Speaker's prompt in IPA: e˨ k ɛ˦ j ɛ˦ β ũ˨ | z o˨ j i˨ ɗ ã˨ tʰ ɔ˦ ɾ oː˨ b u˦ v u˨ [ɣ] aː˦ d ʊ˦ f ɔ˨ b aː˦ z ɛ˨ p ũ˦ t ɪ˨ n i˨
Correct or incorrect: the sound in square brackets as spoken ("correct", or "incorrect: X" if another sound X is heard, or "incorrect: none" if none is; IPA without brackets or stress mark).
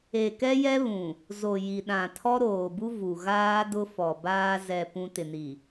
correct